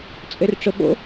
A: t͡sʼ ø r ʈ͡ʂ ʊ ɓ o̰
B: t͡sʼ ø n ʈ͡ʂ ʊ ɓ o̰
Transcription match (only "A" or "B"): A